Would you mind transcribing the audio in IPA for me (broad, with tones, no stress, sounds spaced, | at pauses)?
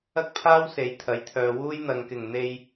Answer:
ɐ˥ k̚ pʰ aː˥ w s e˨˧ j t̪ʰ ɐ˨˥ j t̪ʰ œː˨ w uː˥ j n̪ ɐ˨ ŋ k ɪ˨˩ ŋ n̪ e˧ j